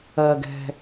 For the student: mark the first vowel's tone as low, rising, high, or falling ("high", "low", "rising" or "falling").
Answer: low